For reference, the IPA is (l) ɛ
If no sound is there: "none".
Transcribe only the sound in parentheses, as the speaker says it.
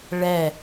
ɭ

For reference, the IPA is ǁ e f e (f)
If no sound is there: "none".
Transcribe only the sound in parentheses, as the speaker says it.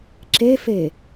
none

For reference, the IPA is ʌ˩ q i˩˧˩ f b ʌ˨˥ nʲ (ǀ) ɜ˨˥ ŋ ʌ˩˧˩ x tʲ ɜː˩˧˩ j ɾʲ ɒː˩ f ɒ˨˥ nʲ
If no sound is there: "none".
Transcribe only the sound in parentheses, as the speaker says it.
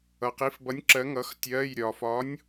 ǁ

